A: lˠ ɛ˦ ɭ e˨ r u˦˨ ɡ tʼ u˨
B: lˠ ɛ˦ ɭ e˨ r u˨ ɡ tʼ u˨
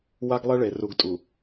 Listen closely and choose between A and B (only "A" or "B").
B